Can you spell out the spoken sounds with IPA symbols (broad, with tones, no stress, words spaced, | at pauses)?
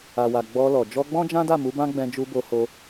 a˨wa˨ ɡ͡bɔ˧lɔ˨ d͡ʒɔ˧ɡ͡bɔ̃˦d͡ʒã˦da˦˨ mu˨˦bã˦ ɡ͡bɛ̃˧d͡ʒu˧ bo˧ho˧